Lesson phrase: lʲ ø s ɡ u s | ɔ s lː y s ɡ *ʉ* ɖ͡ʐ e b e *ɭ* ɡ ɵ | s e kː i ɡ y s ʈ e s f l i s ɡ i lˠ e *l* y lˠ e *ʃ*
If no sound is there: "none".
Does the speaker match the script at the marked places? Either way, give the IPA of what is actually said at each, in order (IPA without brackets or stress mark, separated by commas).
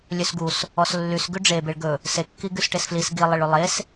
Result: ʉ, ɭ, ɭ, s